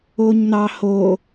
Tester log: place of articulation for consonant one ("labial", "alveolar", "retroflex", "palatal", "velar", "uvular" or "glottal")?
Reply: palatal